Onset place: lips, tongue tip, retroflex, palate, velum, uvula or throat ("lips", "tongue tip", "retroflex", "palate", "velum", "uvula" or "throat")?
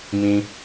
lips